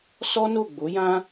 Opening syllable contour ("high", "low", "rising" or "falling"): high